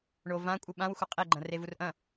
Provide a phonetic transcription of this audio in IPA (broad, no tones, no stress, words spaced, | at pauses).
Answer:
ɳo vã kʷʼɨɓãwxʷɐ qʼeɡ͡ǃɐ̃ revurʔɐ̃